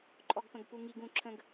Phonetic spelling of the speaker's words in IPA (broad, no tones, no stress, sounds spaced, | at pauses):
ǃʼ ɔ ɡ p ə̃ ɡ p u ŋ i ɡ ũ ǁʰ ə̃ ɡ